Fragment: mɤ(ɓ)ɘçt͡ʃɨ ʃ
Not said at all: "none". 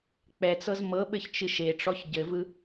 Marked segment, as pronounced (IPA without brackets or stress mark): ɓ